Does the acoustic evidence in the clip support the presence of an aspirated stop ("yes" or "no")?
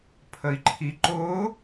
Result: yes